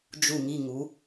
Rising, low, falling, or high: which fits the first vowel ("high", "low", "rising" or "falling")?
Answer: falling